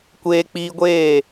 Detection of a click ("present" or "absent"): absent